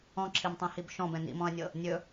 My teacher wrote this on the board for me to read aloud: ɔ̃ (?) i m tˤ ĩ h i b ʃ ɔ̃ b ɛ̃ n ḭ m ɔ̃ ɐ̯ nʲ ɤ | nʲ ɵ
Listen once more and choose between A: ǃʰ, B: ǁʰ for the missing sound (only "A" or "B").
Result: B